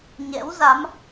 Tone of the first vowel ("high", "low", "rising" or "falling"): rising